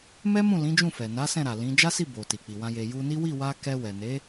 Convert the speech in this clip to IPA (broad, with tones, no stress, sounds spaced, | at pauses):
m ɛ˦ m ũ˦˨ l ĩ˨˦ d͡ʒ ũ˦˨ f ɛ˨ n a˨˦ s ɛ̃˦˨ ɾ a˨ l ĩ˨˦ d͡ʒ a˦ s i˦˨ b o˨ t i˨ k͡p i˨ w ã˧ j e˨ j u˧ n i˦ w i˦˨ w a˧ k ɛ˧ w ɛ˨ n e˨˦